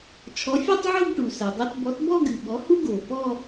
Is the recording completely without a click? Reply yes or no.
yes